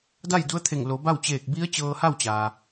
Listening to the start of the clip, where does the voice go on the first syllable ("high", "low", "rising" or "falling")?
falling